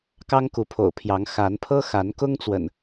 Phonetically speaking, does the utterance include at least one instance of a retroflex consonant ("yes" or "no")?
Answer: no